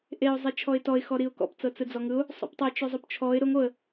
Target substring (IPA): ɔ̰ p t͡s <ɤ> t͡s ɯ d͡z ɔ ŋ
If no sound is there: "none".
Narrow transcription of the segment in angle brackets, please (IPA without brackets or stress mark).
ɤ